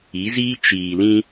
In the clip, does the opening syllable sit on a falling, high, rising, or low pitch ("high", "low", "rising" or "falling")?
rising